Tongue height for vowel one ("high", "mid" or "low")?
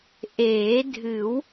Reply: mid